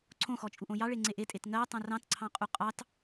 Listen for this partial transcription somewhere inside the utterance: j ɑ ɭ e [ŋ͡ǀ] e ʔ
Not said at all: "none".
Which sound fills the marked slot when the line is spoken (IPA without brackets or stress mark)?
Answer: ŋ͡ǀ